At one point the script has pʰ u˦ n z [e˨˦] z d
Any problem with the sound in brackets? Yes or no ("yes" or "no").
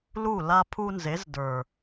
no